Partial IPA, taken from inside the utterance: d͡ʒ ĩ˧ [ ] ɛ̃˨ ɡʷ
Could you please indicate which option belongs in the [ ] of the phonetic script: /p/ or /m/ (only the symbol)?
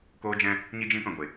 p